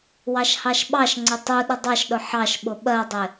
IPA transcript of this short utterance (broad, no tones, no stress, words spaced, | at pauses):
wɑʃhɑʃɓɑʃŋ͡ǀɪ tˤu ɗədˤɑʃɗʊ ħɑʃɓʊ ɓɜdˤɪ